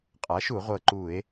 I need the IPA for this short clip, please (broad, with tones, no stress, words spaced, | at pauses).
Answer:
qʼa˩˥ʃu˧˩˧ʁʷɤ˨˩ ǃu˧˩˧e̯